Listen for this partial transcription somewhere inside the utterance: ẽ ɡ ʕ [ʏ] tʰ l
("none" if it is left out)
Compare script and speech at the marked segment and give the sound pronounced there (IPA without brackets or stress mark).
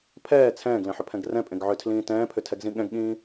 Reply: ʏ